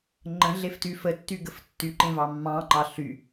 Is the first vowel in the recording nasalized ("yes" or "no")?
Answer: yes